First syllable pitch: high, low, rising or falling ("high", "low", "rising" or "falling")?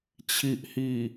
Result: low